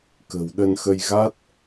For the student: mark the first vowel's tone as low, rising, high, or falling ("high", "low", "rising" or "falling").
low